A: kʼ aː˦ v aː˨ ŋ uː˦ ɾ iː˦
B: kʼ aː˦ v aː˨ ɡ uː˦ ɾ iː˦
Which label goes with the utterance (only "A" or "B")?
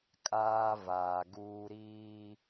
B